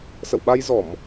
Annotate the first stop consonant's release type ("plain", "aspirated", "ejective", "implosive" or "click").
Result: implosive